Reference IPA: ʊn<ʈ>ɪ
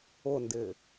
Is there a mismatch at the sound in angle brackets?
yes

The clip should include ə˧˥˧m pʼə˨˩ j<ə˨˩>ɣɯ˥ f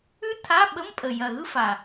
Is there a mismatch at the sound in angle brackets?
yes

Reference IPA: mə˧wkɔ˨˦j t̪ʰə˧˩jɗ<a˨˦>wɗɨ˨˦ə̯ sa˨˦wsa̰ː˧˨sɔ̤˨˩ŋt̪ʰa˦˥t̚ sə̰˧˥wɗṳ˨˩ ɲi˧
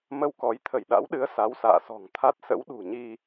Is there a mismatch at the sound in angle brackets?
yes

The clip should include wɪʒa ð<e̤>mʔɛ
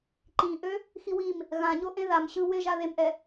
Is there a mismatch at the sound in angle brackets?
yes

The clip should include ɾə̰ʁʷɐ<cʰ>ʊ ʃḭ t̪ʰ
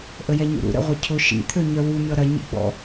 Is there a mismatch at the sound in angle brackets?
no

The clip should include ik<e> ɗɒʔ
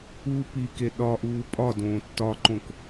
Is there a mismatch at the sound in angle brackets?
no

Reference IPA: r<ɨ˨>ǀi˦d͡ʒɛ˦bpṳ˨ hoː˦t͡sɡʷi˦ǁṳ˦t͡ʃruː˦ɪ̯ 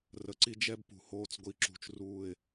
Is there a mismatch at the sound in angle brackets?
yes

